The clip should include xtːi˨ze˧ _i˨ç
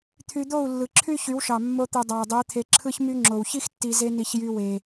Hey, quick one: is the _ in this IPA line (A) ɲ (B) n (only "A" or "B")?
B